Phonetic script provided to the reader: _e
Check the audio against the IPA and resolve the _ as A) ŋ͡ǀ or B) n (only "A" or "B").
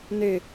B